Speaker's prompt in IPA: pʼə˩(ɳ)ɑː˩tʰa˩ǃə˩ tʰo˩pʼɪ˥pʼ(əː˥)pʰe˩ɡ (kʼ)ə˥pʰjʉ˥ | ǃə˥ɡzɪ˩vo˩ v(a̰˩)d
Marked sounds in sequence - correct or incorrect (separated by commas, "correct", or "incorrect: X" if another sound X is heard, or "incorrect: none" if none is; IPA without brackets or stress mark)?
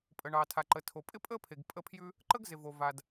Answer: correct, correct, incorrect: pʼ, incorrect: a˩